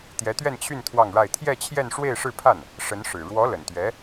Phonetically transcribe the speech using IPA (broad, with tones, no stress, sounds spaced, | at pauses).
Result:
t̪ j ɛ˧˥ t̪ ɥ ɛ˥˧ n t͡ɕʰ y˥˧ n t̪ʰ w ɑ˥˧ ŋ ɻ a˥˧ ɪ̯ t̪ʰ j ɛ˥˧ t͡ɕʰ j ɛ˥˧ n ʂ w e˥˧ ɪ̯ ʂ ɻ̩˥˧ pʰ a˥˩ n | ʂ ə˧˥ n ʂ ɻ̩˨˩ ɻ w ɔ˧˥ l ə˨˩ n t̪ ɥ ɛ˧˥